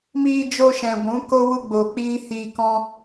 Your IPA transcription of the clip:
miː˧d͡ʒo˧ʃɛ̃˨ ɡʷũ˨˦ko˦wu˦ ɡ͡bo˧k͡piː˦ hiː˧kɔ̃˦

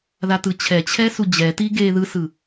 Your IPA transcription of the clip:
ðatɯt͡ɕʰɛ t͡ɕʰɛsud͡ʑɛ tiɡe ðɯsɯ

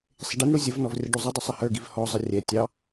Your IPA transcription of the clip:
sˤɪɖinɽu zʲəvnɔv rʲəɖuzˤɪdˤʌ sˤɪhə˞ɡiv hɔzˤə rʲɛ tʲɑ

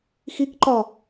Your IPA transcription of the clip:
xik ǃɒ

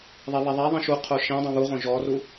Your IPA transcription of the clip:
ðˤeβɛðˤɛðˤĩ ʃuqʰo ʃĩdˤõ βuʁõ ʒɔru

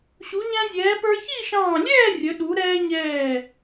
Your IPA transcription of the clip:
ɕu˩˧ɲæ̃˧zʲɛː˩˧ pə˞˧ çi˥˧ʃɑ̃ː˧˩ lʲɛː˥˧ rʲə˩˧ɗu˩˧ɾɛː˧ɲɛː˧˩

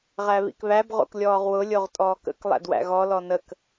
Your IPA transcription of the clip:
ʁæβḭkβæb ʁo̰klʲɔːʁwʊ lʲoʁtʼɔːkə̰k lˠæ̰dwæ̰ɣɔ lɔnək

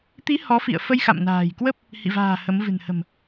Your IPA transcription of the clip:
t̪i˨˦ hɔ˨˦fḭ˧˨ə̯fə˧j xa̰˧˨mna̤ː˨˩jkwə˦˥p̚ | hḭ˧˨va̤ː˨˩ hə˨˦m vɨ̤˨˩nhə̤˨˩m

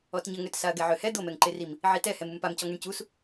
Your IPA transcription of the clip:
ɔtɲəŋøt saɐ̯ɡɛʕøhɛ d̪omɛŋǃerim | ʕitɛhɛmum pamcɔ ŋeɳcus

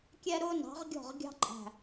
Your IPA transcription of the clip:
kʲɛ˦ɾʊː˦nɑ̤˨˦ʁ ɡʲɔ̤˦˨ʁɡʲɑ̤˦ ǃʼæ̤˨

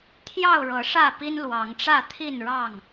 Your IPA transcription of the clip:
t̪ʰjɑ˥˨ʊ̯ɻɤ˨˦ ʂä˥˨pi˦nlwɑ˨˦ŋʈ͡ʂä˥˨ t̪ʰi˥˨nɻɑ˥˨ŋ

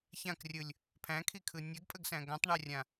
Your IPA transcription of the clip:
çãkrʲɯlʲ | pʰæ̃kʰikʰɯ nʲəɡpʼəɡsæ̃ ɡãtˤɳærʲã

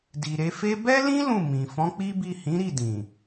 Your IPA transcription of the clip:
di˨ɾe˧fe˦ bɛ˦lĩ˦ lũ˦˨ mĩ˨ fɔ̃˨˦k͡pi˦bi˦˨ hĩ˨˦ɾi˦˨dĩ˨

